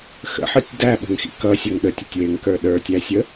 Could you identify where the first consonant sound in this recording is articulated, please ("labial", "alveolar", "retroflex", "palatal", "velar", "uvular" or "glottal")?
velar